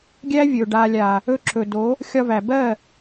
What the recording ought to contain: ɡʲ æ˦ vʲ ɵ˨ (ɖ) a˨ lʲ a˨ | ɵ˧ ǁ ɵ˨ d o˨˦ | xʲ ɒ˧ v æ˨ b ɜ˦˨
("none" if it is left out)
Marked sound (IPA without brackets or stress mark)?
ɖ